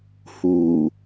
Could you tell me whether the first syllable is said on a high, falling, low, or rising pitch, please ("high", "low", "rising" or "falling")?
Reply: low